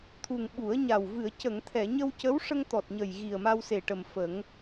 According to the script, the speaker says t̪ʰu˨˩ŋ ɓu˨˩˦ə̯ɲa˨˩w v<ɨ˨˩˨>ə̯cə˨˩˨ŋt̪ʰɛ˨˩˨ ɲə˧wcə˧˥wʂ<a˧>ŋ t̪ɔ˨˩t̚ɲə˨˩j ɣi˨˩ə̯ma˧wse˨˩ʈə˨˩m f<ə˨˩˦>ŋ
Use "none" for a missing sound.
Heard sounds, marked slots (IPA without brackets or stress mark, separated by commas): ɨ˨˩˨, ə˧, ə˨˩˦